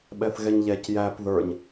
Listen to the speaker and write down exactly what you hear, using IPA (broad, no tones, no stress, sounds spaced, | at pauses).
ɓ ɛ θ ɣ ɛ ɲ ʎ ɛ c j æ p ð ə˞ ɲ